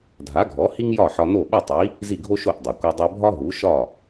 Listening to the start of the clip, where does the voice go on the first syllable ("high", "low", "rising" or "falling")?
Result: rising